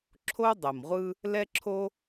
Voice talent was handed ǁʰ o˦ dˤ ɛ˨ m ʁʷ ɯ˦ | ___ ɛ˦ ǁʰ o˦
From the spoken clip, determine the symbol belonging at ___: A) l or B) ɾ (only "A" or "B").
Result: A